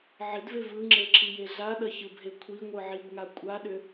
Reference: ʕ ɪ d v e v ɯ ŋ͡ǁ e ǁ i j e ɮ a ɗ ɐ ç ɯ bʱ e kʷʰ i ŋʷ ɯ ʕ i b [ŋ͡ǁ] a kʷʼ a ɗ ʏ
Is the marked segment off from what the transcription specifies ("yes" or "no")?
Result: yes